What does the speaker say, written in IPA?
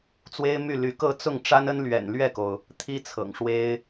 t͡s w e˥ ɪ̯ m y˥˩ l y˧˥ k ɤ˥˧ t͡s ʊ˥˩ ŋ ʈ͡ʂ a˥ n ə˥ n l ɥ ɛ̰˨˩ n l ɥ ɛ˥˩ k o˩ ʊ̯ | t̪ʰ i˥ t͡sʰ ɤ̰˨˩ ŋ ʂ w e˥ ɪ̯

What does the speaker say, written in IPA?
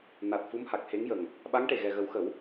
n a˨˩ t̚ f u˧˥ m h a˨˩ k̚ h e˧˥ ŋ j ə˨˩ ŋ | ɓ a˧˥ ŋ ʈ e˨˩ ɣ ɛ˨˩ ɣ ə˨˩˦ w x ə˨˩˦ w

